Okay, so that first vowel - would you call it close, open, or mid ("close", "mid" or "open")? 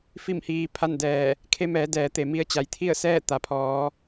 close